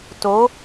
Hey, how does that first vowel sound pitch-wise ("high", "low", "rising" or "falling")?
rising